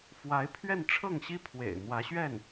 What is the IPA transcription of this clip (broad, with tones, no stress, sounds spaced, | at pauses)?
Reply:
f w a˧˥ ɪ̯ pʰ ɥ ɛ˥˧ n ʈ͡ʂʰ ɤ˥˩ ŋ ɕ i˥ pʰ w ḛ˨˩ ɪ̯ n̪ w ä˧˥ ɕ ɥ ɛ˥˩ n